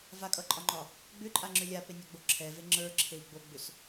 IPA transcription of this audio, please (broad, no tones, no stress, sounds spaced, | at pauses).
v a kʼ ʌ ǃʼ ɒ ŋ͡ǃ ɒ | ɡ͡b ʏ ǃʼ a ŋ͡ǁ ʏ lʲ a p e nʲ a ɡ͡b o ǁʰ ɛ v e ŋ͡ǁ ə˞ ǁʰ e i̯ ɡ͡b o ɡ͡b ʏ s